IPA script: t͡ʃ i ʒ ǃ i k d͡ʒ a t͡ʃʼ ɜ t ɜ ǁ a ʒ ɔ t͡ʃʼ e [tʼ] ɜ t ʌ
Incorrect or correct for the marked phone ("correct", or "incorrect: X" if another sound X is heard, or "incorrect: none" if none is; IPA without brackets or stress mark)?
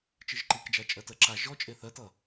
incorrect: θ